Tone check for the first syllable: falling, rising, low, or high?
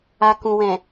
low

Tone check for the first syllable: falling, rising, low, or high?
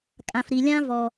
low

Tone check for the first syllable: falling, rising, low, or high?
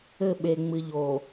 falling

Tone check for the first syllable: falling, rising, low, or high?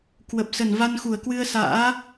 low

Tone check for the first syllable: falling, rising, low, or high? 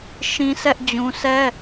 high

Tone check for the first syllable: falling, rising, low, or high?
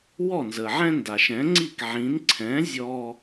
falling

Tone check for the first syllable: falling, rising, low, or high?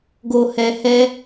low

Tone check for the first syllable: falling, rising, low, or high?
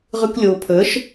high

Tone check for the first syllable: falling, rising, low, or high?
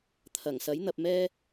low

